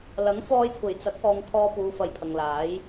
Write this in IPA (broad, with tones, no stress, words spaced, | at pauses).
lɐ˨˥ŋ fɔː˧jkʷʰe˨˩jt͡sɐ˨˥k̚ ɔː˨ŋ kʰɔː˧puː˨˧ fɐ˨˧jpʰɐ˨ŋlaː˨˥j